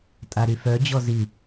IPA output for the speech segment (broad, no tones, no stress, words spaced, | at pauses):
tʼaɾyfœ d͡ʑɔzi